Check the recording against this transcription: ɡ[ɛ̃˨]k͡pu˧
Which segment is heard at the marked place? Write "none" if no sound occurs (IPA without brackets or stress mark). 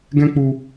ɛ̃˦